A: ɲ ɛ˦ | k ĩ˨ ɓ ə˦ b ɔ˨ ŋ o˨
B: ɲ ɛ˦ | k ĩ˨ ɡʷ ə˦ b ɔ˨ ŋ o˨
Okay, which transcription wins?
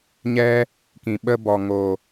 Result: A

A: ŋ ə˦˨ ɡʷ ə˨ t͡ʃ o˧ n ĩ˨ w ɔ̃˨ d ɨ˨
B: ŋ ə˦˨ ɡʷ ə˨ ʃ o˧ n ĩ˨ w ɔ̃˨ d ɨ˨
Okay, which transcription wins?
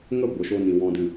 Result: B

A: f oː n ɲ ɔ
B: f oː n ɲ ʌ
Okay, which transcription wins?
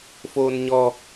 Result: A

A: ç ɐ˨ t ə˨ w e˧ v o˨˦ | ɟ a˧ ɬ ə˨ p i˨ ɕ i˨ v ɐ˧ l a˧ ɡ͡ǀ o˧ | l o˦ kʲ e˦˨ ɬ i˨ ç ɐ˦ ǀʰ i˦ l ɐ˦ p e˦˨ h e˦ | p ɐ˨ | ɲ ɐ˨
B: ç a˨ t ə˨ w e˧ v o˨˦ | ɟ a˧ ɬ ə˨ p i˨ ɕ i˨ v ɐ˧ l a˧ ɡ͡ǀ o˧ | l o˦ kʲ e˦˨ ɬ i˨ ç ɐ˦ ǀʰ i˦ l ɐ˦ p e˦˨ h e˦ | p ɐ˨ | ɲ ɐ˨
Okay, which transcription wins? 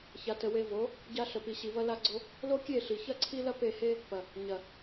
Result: B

